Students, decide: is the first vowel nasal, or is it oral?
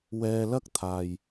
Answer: oral